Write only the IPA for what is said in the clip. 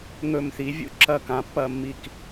ŋ ɵ˦˨ m θ i˨˦ vʲ ṵ˦˨ ǁ ɐ˦˨ k ã˨˦ pː ɐ˦˨ mː i˦˨ k

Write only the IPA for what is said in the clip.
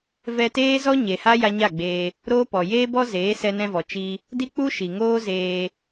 v ɛ˧ t eː˦ z ɔ˦ ɲ e˨ h a˦ j a˧ ɲ a˦˨ ɡ͡b eː˧ | ɾ oː˦ p ɔ˨ j eː˦ b ɔ˦ z eː˨˦ s ɛ˧ n ɛ̃˧ v ɔ˨ t͡ʃ i˦ | d i˦ k͡p u˦ ʃ i˨ ŋ oː˦ z eː˧

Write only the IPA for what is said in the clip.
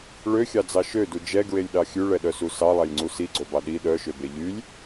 ɭ ø xʲ ɑ d͡z ɑ ʃ ø d u d͡ʒ ɛ ɡ ɹ e lʲ ɗ ɑ xʲ ʉ ɭ ɛ ɗ œ s u s ɑ lˠ æ lʲ ŋ͡ǀ u s i ɡ͡ǀ o b ɑ ɗ i ɗ œ ʃ ø b e ʎ y lʲ

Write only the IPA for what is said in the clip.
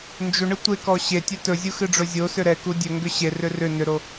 n d͡ʒ ʏ ɳ ɨ tʷ e k ɔ ɕ e tʲ ɛ t ɵ zʲ u x ɨ ɖ͡ʐ ɵ zʲ o s ʏ ɾ ɛ k u dʲ ɵ ŋ ɡ ʏ ɕ e r ʏ r ʏ n ʏ ɾ o

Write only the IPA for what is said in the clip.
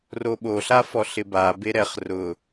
r o ɓ o ɬ a f ɔ ɬ ɪ b a b e ɾ ɛ χ r ʊ

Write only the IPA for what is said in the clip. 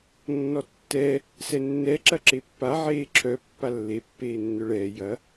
nː ɔ tː ɛ | s ɛ nː ɛ ǁ ɐ ǁ e pː a ʕ eː ǁʰ œ pː a lː e pː eː nː œ ɭ ɛː j ɐ

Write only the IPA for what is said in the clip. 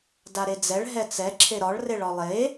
d a ɾ e d͡z ɛ ɭ ɦ ɛ t͡s ɛ ǁʰ e ɾ ɒ ɭ r e ɭ ɒ lˠ e

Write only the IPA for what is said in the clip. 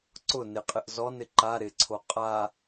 ǀ ʊ n ɪ qʼ ɪ ʔ z ɔ n ɪ ǃ a ɾ ɪ ǀʰ o qʼ a

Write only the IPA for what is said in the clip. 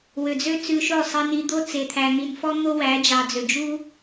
w ø˨ d͡z ø˦ t͡s ʉ˧ ʃ o˦˨ sˤ i˧ n i˧ d̪ o˦ t͡s e˨ t̪ʰ æ˨ n̪ i˨ n f ɔ˦ n̪ o˦ w æ˨˦ d͡ʒ ɑ˨ d͡z ø˨ d͡ʒ u˦

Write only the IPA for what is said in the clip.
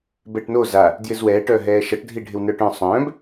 b ɛ ʈ n o z a | d j ɪ z w ɛː ʈ œ ɦ ɛː ʃ ʌ ʈ dʱ i ɖʱ ɪ w n œː ʈ œ̃ sˤ œ̃ː b

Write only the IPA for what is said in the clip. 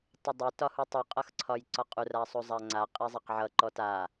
tˤ ʌ dˤ e t ɒ h u tˤ u qʼ ʌ x ǀʰ ɒ j ǀ ɒ qʼ u r a sˤ u zˤ a ŋ͡ǀ a qʼ e zˤ a q ʕ ʌ ǃ ɔ t a

